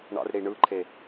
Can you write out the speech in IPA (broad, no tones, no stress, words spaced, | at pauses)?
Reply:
ɳɑ̰rɽi ɳɯǃʰe